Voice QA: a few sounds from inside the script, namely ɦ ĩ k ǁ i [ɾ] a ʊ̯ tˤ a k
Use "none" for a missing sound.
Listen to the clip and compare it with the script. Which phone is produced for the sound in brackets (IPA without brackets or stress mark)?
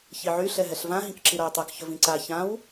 ɾ